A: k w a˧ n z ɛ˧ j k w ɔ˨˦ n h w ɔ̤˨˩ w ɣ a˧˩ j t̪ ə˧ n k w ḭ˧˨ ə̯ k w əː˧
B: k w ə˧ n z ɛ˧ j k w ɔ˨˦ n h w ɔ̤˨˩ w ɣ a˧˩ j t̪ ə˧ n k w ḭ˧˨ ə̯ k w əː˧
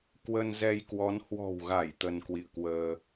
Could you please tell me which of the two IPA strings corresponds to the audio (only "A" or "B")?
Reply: B